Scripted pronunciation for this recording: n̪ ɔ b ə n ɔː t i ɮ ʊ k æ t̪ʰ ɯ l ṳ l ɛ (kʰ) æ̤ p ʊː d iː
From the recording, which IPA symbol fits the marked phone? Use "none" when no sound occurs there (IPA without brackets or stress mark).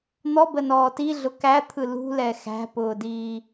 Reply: x